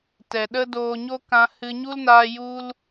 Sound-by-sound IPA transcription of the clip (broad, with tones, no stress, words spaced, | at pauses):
tɛ˨ɗə˦doː˧ɲo˦ kã˧hɨ˧ɲu˦lnaː˧ ju˧l